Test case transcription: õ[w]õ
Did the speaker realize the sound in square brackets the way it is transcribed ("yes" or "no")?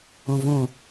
no